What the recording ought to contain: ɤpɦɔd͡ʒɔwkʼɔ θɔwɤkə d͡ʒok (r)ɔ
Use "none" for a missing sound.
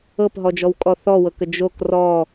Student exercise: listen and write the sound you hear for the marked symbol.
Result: r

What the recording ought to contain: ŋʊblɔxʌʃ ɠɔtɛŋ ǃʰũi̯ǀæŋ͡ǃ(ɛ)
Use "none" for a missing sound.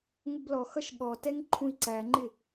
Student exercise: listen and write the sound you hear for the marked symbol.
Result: ɪ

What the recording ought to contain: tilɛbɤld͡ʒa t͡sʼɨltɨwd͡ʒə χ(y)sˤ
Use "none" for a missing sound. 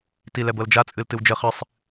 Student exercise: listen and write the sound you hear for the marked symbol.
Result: ɨ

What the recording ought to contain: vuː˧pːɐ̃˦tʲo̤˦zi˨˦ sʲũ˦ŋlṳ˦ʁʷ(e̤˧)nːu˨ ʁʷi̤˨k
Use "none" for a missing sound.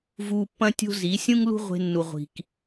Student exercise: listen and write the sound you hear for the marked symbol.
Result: e̤˧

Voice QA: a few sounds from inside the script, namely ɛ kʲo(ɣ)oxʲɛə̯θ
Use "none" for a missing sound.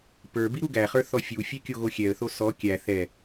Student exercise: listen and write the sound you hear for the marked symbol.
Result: ɣ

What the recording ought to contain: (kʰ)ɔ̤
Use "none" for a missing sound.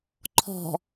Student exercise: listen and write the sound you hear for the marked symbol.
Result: ǃʰ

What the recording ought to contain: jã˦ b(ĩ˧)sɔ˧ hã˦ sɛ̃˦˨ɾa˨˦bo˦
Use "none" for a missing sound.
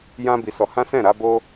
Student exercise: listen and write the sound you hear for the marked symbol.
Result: i˧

